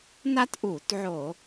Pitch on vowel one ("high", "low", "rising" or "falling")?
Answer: high